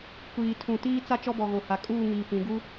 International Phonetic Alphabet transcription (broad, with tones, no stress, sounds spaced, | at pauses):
kʷ iː˨ tʰ ũ˨ t iː˦ t͡s a˦ t͡ʃ ɔ˦ b ɔ˨ ɣ o˨ h a˨ kʼ uː˦˨ ŋ iː˨ p ĩ˨˦ ɡ u˦